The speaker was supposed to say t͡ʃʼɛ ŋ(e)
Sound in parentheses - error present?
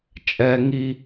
yes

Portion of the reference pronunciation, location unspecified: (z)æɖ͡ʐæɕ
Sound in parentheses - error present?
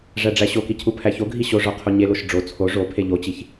yes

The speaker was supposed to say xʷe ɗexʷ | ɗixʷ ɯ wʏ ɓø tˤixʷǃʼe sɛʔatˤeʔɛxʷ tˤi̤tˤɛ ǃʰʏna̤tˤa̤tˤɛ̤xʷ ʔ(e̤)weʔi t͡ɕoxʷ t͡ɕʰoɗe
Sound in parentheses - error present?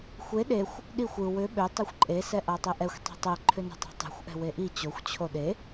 yes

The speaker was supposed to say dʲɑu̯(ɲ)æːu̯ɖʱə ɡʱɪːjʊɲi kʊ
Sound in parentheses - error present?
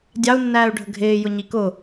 yes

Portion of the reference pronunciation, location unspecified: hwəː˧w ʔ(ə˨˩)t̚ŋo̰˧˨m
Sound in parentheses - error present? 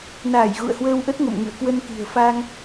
yes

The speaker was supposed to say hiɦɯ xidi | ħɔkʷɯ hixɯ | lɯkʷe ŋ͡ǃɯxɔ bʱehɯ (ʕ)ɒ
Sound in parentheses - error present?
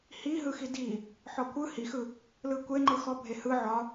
no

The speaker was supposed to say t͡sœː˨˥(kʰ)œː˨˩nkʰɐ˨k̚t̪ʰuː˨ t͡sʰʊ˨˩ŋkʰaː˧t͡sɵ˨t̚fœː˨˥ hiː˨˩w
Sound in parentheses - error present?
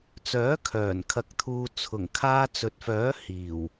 no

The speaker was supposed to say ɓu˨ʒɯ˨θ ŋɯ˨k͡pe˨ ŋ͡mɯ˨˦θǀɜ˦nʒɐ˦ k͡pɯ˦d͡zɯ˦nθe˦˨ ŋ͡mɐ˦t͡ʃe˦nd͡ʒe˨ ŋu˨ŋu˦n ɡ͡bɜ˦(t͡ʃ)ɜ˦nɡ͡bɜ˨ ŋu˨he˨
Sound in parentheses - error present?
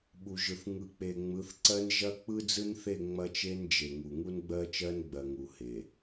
no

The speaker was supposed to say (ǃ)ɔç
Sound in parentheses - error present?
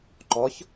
no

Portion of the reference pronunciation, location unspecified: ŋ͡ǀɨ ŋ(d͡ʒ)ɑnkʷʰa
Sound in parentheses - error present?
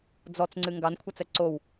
yes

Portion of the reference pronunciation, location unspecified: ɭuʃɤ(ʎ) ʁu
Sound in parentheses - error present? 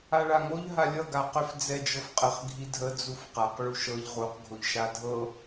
no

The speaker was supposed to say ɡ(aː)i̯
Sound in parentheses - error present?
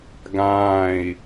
yes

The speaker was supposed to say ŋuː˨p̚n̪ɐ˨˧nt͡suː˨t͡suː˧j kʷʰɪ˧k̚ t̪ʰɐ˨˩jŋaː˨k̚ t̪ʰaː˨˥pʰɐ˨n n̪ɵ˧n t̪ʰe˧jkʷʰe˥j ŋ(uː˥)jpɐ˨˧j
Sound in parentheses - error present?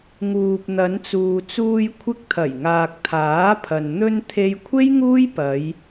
no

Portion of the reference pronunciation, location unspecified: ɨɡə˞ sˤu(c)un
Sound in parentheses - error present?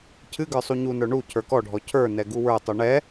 yes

